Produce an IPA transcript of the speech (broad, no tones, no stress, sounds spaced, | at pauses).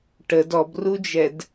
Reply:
ʈ ə d ɔ b r u d͡ʒ ɛ d